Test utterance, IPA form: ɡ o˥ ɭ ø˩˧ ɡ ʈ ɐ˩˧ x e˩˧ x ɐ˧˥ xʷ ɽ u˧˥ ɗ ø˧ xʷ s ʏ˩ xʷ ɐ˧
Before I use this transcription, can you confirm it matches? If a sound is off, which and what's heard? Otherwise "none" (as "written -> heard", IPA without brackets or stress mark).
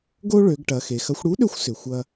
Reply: none